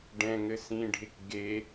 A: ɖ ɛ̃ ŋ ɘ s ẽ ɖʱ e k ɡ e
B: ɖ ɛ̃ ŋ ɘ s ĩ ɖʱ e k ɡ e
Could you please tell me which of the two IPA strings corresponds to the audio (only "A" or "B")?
B